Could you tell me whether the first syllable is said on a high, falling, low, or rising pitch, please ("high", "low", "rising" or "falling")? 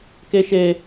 high